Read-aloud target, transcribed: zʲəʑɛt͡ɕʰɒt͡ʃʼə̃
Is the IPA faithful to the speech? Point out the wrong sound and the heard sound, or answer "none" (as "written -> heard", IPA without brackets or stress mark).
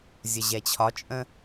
none